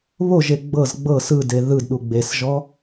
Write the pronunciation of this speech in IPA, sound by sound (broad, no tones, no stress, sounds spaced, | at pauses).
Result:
β o ʒ e ɡ͡b ɤ z ɡ͡b ɤ s ɯ d e ð ɯ d ɗ u ɡ͡b e s ʒ ɔ